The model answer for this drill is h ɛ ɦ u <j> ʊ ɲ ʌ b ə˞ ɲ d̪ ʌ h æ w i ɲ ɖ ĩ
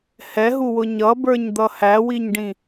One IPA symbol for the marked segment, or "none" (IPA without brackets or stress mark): w